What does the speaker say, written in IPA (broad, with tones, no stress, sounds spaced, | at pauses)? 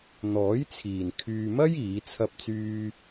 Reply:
n̪ ɔː˨˥ j t͡sʰ iː˨ n kʰ yː˧ m ɐ˥ j iː˨˥ t͡sʰ ɐ˥ p̚ t͡s yː˥